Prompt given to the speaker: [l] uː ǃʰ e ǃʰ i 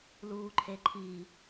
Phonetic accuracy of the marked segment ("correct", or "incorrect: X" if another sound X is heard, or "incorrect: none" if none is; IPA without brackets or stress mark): correct